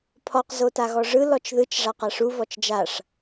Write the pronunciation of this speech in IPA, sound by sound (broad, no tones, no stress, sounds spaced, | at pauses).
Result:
pʰ ɔ q z o t a ɣ ɔ ʐ ɯ l ɔ t͡ʃ ð ɯ t͡ʃ ʐ a q a ʂ u v ɔ t͡ʃ d͡ʒ a ʂ